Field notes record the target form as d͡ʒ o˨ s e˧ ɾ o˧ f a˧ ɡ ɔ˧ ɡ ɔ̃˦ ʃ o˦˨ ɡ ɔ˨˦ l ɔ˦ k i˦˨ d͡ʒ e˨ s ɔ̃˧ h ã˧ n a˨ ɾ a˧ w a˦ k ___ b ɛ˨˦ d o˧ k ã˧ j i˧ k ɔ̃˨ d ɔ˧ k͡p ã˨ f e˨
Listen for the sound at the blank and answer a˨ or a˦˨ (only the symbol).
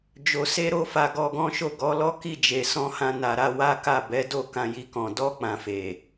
a˦˨